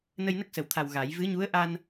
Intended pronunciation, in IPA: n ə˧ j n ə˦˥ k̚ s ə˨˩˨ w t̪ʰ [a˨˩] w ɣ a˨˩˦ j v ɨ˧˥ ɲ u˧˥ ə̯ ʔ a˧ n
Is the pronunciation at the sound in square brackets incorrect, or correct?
correct